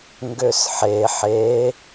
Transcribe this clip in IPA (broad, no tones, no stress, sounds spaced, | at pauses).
ŋ ɡ ø s ħ e ħ e